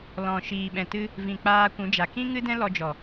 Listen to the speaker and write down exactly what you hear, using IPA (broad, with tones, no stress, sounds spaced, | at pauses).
l ɔ̃˨ ʃ iː˨ ɓ ɛ̃˨ t ɨ˦ | v ĩ˨ k͡p aː˧ kʷ ũ˨˦ d͡ʒ a˨ k ĩ˦ ŋ ɨ˦ d ɛ̃˦ l ɔ˧ d͡ʒ ɔ˨